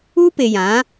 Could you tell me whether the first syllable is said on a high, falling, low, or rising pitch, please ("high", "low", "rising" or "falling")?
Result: high